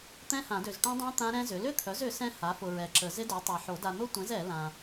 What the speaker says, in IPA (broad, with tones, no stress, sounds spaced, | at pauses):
t̪ ɛ̃˦˥ h ã˨˩˦ d ø˨ z ʈ œ̃˦˥ dˤ œ̃˦˥ t̪ ã˦˥ ɾ ɛ̃˦˥ z ʏ˩˥ l ʏ˦˥ t̪ʰ œ˩˥ z ʏ˩˥ s ɛ̃˦˥ h a˩˥ f ʊ˨ ɹ ɛ˨ ǁ ə˨˩˦ z ɪ˦˥ d œ˩˥ tˤ a˨ ħ o˨˩˦ d a˨ n̪ ʊ˦˥ tʷ ɛ̃˩˥ z ɛ˨˩˦ l ã˨